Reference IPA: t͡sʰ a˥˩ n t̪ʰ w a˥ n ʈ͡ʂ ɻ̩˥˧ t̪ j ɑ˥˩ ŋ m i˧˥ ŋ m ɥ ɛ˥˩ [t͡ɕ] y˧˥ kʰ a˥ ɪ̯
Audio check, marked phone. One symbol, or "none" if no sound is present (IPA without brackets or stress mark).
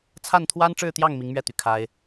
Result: t̪